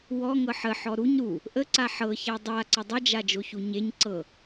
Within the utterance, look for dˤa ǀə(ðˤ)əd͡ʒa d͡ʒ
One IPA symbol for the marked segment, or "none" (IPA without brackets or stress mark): dˤ